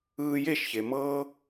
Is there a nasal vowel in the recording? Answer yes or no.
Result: no